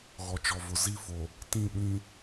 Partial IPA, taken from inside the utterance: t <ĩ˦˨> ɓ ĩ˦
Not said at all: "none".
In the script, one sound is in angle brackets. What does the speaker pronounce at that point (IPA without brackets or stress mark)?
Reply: ĩ˦˨